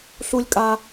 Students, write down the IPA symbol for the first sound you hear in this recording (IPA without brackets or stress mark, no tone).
ɬ